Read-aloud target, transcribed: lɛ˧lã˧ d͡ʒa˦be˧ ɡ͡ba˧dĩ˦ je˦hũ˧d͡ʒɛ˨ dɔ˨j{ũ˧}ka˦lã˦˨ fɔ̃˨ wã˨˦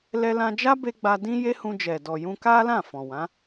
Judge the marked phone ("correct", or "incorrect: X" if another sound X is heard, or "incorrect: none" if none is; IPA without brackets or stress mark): correct